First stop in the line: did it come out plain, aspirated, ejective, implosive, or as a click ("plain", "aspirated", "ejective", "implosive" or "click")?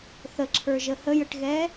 click